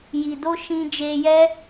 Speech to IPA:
j i˨ d o˧ ʃ ĩ˧ d͡ʒ e˧ j ɛ˦

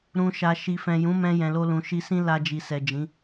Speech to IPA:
ɾ ũ˨ ʃ a˨ ʃ i˨ f ɛ̃˨ j ũ˨˦ m ɛ̃˧ j ɛ̃˨ l o˧ l ũ˨ ʃ i˧ s ĩ˦ l a˧ d͡ʒ i˨ s ɛ˨ d͡ʒ ĩ˨˦

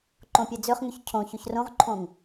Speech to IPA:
ǃ õ pʲ e d͡z ø χ ŋ y ç cʰ õ ç y ç r õ ʁ ǃʰ õ ŋ

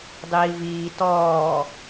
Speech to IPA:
dˤ iː v iː t ɔː

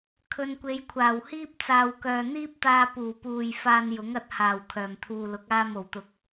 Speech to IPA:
kʰ ɵ˨ n kʷ e˨˧ j kʷʰ aː˨˩ w h iː˥ p̚ t͡s aː˨ w k œː˨ n̪ iː˥ p̚ t̪ aː˧ p uː˨˩ p uː˨ j f aː˧ n j ʊ˨˥ ŋ ɐ˨˥ t̚ h aː˨˩ w kʰ œː˨˩ m t̪ʰ uː˨ l ʊ˨˥ k̚ aː˧ m o˨˩ w t̪ ʊ˨˥ k̚

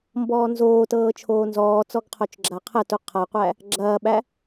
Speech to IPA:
m b ɔː n z oː t ɤː t͡ʃʰ oː n z ɔː t͡s ɔ ɡ qʰ o t͡ʃ ɡ͡ǁ a qʰ ə t u qʰ a qʷ æ | ɡ͡ǁ ɐː ɓ æ

